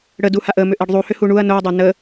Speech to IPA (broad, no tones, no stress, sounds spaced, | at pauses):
ɽ ə d u h a ʔ ə m ʏ ʔ e ɖ ðˤ u h ʏ h u ɳ u ɐ̯ n o ɐ̯ dˤ a n ə